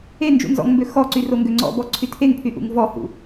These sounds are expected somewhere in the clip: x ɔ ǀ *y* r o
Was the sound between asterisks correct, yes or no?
yes